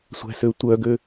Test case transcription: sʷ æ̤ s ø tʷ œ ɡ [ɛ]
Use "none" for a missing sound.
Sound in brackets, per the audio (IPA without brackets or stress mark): ø